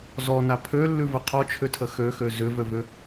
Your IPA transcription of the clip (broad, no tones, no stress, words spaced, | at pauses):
zɔna pʰølːʉvə qʰɔt͡ʃʰʏtʰə xøxø zʏvøvʏ